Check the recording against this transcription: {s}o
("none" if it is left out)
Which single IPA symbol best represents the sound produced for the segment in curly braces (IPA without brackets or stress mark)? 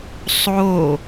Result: sˤ